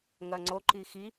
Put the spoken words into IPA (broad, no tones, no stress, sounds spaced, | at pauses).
ŋ ɐ ŋ͡ǀ o ǃ i x i